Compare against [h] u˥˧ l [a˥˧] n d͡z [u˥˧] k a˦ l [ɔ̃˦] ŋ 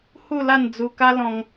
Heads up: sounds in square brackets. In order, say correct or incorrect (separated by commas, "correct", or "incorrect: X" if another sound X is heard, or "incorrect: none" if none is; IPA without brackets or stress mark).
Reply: correct, correct, incorrect: u˧, correct